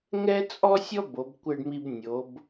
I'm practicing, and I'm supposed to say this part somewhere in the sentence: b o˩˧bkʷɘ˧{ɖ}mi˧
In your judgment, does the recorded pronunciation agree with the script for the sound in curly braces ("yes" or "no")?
yes